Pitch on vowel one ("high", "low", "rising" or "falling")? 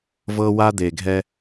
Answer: high